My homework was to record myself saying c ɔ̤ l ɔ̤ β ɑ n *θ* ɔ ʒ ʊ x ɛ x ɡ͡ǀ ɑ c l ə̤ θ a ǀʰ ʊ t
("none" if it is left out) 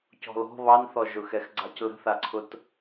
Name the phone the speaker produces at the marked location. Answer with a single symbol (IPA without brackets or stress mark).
θ